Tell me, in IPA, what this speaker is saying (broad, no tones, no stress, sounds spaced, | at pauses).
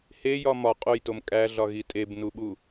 h e j ɒ m ɒ qʼ o j t o m kʼ æ ɮ ɒ ɣ i tʼ e b n u ɓ u